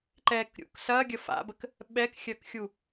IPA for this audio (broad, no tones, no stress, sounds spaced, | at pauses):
ǃ ɛ k ɾʲ ṵ k s ɐ ɡʲ ə f a̰ b ə k | ɓ ɛ k xʲ œ k xʲ u